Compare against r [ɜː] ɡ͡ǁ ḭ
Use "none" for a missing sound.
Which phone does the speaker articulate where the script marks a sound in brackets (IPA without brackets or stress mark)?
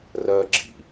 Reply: ɜː